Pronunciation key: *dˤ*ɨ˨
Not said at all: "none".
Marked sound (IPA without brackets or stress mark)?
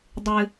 dˤ